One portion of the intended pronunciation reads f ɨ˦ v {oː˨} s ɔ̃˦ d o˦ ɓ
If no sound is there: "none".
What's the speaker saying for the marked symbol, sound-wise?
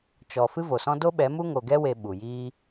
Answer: o˨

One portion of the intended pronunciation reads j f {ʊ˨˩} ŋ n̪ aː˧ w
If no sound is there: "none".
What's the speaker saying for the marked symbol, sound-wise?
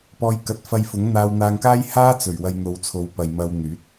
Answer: ʊ˨˥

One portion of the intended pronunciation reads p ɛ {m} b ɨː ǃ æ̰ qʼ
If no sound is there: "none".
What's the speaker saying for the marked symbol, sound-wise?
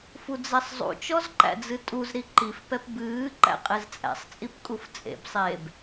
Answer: p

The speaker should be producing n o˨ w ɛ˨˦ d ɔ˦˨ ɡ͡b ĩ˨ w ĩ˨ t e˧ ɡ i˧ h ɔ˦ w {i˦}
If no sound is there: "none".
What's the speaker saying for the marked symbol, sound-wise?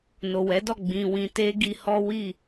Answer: i˦˨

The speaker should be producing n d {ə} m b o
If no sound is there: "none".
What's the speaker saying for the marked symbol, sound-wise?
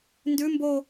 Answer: ʉ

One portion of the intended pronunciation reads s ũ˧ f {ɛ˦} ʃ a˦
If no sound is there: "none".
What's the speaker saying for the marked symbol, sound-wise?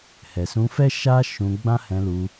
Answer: ɛ˦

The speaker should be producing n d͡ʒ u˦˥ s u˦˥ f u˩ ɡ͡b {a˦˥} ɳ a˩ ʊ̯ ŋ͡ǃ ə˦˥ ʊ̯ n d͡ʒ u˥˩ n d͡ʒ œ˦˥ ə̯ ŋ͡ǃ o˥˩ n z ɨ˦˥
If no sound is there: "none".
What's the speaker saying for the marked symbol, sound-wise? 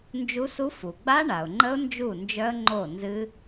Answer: a˦˥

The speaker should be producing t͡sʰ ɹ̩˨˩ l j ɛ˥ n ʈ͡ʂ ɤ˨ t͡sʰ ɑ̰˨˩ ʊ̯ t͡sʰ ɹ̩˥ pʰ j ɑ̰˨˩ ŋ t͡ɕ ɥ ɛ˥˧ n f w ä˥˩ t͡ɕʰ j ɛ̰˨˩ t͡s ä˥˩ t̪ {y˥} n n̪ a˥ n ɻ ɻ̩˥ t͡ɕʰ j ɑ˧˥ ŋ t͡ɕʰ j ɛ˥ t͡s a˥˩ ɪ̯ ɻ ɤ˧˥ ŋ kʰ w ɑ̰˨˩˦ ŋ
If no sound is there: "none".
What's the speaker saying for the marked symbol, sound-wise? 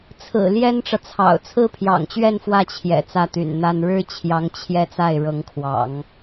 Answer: y̰˨˩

